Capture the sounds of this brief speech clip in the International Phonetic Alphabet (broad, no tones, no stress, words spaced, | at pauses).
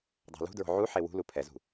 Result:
dˤa̤lṳdɹo̤ ʕuħe wṳlu pʰɛzṳ